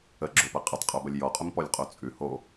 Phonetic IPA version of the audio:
ə ɡ͡ǁ o p ɐ qʼ ə tˤ qʼ o b ɐ lʲ j ɔ qʼ ʊ m p ɔ lʲ qʼ o t͡sʼ ʉ h o

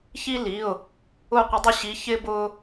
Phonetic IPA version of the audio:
ç i˦ l i˩˧˩ ʊ̯ | ʊ˦˨ qʷ ɪ˨˦ dˤ ʊ˦˨ ɕ i˨˦ ç ɪ˦ b ʊ˦

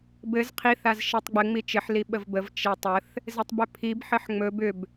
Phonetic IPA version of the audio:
b ɘ z qʰ i θ a z ʃ i tˤ ɡ͡b ɘ ŋ͡m i t͡ʃ ɘ ħ l i ɓ ə v b ə v t͡ʃ e tˤ ə θ | z e tˤ b ʏ pʰ i b ħ ɘ ħ ŋ͡m ɵ b ʏ b

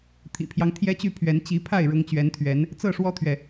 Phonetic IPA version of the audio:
t̪ʰ ḭ˨˩ pʰ j ɑ˦ ŋ t̪ʰ j ɛ˦ t͡ɕ y˥˨ pʰ ɥ ɛ˨˦ n t͡ɕ i˨˦ pʰ a˥˨ ɪ̯ ɻ ʊ˨˦ ŋ t͡ɕ ɥ ɛ˨˦ n t̪ʰ ɥ ɛ˨˦ n | t͡s ɤ˥˨ ʂ w ɔ˦ t̪ʰ ɥ ɛ˨

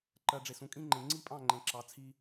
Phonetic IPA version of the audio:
ǃ ɜ˨ ɖ͡ʐ e˨ s ũ˨ kʼ ĩ˦ ŋ͡ǃ ẽ˨ ŋ͡ǀ i˦ pʼ ɑ̃˦˨ ŋ͡ǃ ẽ˨ ǁ ɑ˨˦ t͡sʰ i˦

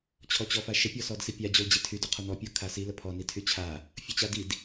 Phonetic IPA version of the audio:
t͡ɕʰ ɔ t͡ɕ ɔ f a ʃ ə pʲ ɔ s ɔ d s i pʲ a d͡ʑ o l d͡ʑ i tʰ y d o qʰ o n ɔ pʲ o kʰ a s i l ə pʰ ɔ n i tʰ y t͡ɕʰ a | fʲ o t͡ɕ a d i d

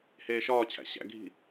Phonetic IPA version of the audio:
h eː ʃ ɒː t͡ɕʰ æ̰ ɕ æ̰ ɡʱ i̤

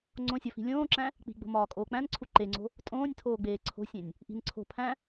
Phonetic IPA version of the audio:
ŋ͡ǀ õ sʲ ɒ f i̤ lʲ õː ǁ æ̃ | k͡p i̤ ɡ͡b o̤ m ɒː kʼ oː k͡p æ̃ n ǀʰ u ǃ e ŋ͡ǀ o̤ | tʼ õː nʲ tʰ oː ɡ͡b eː ǀʰ o̤ sʲ ẽ nʲ | ʔ i̤ n ǀʰ o̤ pʰ æ̃

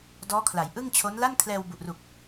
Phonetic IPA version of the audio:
d ɔː˦˥ kʰ l a˩˦ j ʔ ɯ˥˩ ŋ t͡ɕʰ o˦˥ n l a˥˩ n kʰ l ɛː˧ w b u˨˩ ʔ r u˨˩ k̚

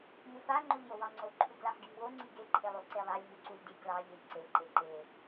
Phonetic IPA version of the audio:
m u f a ŋ͡ǃ o ʎ j o w ɑ ŋ͡ǀ o ǃʰ u ɡ l a ħ ɡ i m w o ŋ͡ǀ i ɡ e ǃʰ e lˠ u ǀ e lˠ a lʲ m u ǀ u lʲ d i ɡ l ɑ ʎ e ʎ ǀ e ǃ e ǃ e

